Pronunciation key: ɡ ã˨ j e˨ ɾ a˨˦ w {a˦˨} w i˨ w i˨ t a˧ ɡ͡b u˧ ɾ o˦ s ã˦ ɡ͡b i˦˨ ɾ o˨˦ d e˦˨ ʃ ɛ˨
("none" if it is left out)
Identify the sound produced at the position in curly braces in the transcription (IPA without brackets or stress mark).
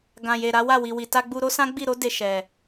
a˦˨